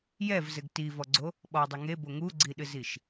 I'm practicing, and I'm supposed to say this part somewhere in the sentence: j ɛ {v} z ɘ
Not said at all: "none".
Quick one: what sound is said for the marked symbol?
v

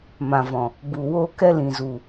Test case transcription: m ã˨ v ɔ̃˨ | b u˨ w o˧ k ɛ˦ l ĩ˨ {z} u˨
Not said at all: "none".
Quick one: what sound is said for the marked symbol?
z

